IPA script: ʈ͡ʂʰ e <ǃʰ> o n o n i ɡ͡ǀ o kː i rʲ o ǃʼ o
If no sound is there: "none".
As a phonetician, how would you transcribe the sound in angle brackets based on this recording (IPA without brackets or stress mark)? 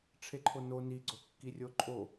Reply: ǃʰ